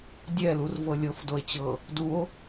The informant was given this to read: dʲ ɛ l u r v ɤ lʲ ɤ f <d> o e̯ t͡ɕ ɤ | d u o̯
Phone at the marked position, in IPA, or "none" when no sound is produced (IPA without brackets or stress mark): d